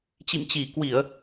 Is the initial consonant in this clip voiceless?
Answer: yes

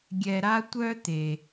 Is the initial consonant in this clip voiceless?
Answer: no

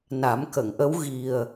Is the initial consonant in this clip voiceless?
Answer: no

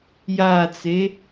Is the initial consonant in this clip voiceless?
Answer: no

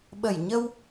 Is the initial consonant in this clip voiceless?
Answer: no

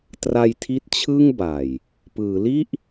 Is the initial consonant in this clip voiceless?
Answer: yes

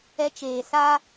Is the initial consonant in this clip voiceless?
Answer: yes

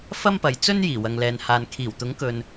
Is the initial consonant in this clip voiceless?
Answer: yes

